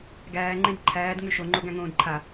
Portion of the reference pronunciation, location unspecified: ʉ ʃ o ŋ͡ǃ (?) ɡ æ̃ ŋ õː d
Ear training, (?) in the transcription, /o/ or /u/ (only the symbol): o